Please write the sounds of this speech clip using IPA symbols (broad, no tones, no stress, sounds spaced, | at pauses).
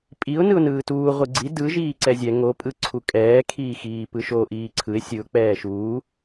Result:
pʼ i ʊ̯ n ɯ ʊ̯ n ɯː t uː ʁʷ ɯ ɡ͡ǀ i d ɯ ʒ iː ǀ ɛ zʲ ɛ ŋ o pʼ ɯ ǀʰ u kʼ ɛː kʰ iː x iː p ɯ ʃ o ʔ iː ǀʰ ɯ ɪ̯ sʲ ɯ ʊ̯ k͡p ɛː ʃ uː